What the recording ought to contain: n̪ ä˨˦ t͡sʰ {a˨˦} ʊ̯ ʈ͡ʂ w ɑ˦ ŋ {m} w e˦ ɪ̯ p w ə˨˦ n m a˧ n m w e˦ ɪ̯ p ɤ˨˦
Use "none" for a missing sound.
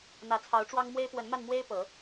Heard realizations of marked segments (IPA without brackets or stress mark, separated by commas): ɑ˨˦, m